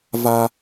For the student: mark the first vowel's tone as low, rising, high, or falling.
high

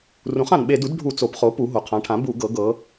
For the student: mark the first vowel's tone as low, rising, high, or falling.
rising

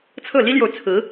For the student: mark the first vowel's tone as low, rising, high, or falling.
falling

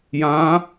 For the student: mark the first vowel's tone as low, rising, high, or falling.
rising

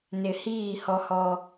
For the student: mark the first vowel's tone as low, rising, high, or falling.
low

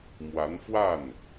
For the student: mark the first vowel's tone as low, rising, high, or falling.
rising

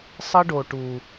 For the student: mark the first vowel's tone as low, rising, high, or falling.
high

